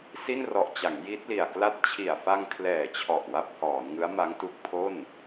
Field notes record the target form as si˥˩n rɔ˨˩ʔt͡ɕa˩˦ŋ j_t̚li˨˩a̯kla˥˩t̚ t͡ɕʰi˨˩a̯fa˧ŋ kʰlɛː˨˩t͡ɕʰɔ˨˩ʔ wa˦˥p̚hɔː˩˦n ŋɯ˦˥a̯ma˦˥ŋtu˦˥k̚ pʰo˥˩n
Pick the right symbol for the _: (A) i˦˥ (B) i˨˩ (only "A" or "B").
A